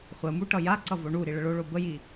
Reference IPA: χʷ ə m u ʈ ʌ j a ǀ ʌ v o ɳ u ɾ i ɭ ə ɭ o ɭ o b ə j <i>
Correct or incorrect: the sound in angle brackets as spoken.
correct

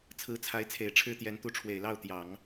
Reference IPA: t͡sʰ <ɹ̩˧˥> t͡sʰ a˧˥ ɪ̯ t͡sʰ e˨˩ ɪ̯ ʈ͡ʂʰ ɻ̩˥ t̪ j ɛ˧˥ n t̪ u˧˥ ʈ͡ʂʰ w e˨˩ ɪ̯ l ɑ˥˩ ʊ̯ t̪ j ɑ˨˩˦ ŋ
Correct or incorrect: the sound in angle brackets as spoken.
correct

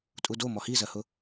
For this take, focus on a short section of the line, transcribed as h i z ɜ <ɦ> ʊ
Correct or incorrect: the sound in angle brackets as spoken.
incorrect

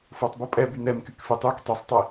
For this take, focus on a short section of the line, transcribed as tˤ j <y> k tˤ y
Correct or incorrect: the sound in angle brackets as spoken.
correct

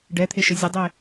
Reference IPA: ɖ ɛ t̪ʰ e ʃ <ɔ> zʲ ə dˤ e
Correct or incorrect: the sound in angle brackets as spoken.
incorrect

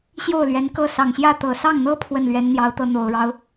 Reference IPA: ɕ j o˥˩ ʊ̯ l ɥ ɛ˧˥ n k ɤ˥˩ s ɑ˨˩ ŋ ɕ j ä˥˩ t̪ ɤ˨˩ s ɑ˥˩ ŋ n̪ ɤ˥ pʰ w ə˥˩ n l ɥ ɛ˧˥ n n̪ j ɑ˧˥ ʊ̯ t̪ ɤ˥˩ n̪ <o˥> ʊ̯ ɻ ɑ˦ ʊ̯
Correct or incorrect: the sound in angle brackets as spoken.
incorrect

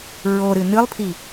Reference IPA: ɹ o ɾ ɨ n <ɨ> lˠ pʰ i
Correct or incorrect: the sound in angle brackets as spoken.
correct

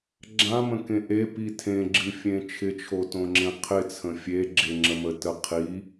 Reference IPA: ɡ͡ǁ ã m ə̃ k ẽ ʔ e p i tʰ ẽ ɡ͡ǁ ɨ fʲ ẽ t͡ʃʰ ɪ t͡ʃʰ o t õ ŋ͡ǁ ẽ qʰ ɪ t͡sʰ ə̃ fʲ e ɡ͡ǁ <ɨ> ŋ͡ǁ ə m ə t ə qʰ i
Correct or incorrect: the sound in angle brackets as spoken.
incorrect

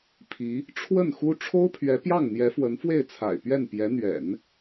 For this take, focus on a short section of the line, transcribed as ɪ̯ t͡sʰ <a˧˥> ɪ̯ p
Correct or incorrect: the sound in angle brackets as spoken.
incorrect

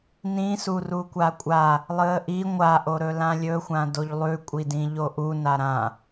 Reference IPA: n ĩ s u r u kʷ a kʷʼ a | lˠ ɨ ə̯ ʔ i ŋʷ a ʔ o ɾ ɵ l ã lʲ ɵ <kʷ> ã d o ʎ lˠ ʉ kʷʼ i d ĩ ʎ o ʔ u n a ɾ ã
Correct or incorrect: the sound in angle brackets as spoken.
incorrect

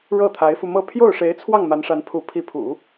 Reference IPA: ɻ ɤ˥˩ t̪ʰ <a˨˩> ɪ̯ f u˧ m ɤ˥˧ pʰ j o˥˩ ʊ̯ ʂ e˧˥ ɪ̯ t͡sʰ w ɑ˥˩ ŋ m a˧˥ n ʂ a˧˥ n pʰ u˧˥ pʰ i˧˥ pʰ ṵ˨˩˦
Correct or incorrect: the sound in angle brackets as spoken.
incorrect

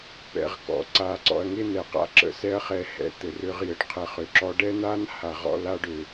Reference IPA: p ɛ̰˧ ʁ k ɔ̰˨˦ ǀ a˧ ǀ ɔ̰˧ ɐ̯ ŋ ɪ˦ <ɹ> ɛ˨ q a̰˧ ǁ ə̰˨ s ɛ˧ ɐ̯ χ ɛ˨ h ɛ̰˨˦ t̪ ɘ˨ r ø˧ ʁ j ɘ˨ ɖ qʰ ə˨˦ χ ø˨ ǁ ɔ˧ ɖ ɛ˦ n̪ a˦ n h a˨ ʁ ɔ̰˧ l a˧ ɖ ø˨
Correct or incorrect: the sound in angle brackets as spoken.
incorrect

